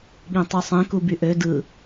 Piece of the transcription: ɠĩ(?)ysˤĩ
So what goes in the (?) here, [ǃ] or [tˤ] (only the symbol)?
tˤ